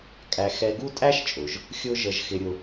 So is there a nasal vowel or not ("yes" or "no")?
no